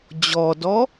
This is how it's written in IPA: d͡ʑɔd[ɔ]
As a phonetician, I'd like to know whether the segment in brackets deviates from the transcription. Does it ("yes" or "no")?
no